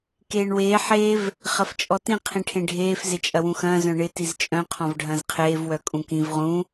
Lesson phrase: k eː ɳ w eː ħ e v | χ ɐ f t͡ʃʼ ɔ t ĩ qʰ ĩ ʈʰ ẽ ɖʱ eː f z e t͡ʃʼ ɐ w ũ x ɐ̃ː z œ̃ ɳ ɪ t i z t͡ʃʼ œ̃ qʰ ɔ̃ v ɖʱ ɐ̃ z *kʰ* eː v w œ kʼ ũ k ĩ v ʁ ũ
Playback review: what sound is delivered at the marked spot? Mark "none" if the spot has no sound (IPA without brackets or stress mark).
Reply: qʰ